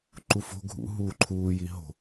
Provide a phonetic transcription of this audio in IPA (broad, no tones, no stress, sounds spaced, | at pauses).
ǃ u f o̤ ɡʱ ṵ ɦ uː ǃʰ uː j i ɦ o̤